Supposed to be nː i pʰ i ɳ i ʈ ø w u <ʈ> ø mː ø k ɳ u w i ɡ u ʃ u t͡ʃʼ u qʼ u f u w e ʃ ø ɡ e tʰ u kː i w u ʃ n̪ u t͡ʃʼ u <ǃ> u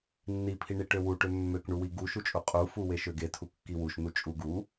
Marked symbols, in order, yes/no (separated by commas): yes, no